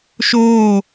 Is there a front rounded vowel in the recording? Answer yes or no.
no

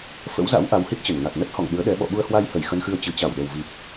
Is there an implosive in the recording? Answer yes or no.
yes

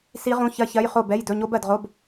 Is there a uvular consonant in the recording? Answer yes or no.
yes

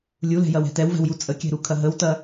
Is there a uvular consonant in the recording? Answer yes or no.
no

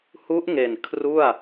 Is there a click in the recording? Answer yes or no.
no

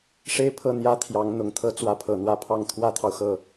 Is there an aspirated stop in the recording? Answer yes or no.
yes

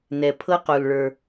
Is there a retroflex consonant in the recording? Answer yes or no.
yes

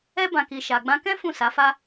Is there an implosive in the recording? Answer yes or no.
no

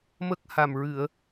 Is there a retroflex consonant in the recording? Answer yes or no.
no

